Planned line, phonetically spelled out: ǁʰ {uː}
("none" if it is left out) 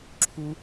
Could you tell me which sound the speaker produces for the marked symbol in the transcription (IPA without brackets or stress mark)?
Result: u